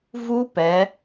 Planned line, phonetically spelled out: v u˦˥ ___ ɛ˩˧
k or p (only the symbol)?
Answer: p